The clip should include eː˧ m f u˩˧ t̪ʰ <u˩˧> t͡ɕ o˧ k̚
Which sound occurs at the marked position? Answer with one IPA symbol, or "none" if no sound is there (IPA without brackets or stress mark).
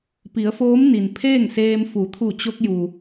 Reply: u˧˩